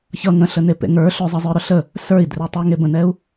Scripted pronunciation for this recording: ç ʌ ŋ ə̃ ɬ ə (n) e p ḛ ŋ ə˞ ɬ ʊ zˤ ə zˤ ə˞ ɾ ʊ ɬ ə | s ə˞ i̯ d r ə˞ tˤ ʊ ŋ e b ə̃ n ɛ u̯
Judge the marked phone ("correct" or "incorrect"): correct